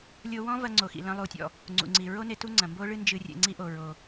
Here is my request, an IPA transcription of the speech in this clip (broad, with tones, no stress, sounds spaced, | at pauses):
lʲ o˧ w ɔ̃˥ v ɐ˧ ŋ͡ǀ o˩ x ḭ˩ l ɐ̃˧ lˠ u˩ tʲ ɔ̰˩ | ŋ͡ǀ ṵ˩ ŋ͡ǀ i˩ ɹ o˥ n e˧ t u˥ ŋ͡ǀ ɐ̃˩ m b o˥ ɭ ɨ˥ n d͡ʒ ɨ˧ rʲ ḛ˧ ŋ͡ǀ i˥ ʔ o˩ ɹ o˩